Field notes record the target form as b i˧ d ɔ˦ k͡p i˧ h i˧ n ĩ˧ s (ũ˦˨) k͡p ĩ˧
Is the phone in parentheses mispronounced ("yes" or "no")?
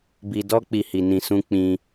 yes